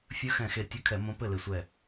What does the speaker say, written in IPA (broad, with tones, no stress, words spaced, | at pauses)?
fʲɵ˧˥xɛ̃˧˩xe˧˩ tʲɵ˧˥˧kʰɛ˧˩˧ mõ˧˥pɘ˥˩le˧˩sʷɛ˧˩